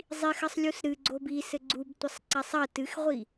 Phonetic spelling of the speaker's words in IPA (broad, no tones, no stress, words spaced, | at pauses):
zˤixɐsˤlʲus ɾɨɡ͡ǀob i sɘɡ͡ǀubtʷɐsˤǀasˤ ɐ tɨxʁʷi